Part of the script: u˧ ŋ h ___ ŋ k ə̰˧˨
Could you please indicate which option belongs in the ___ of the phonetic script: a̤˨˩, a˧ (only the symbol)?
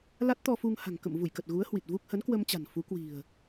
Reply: a̤˨˩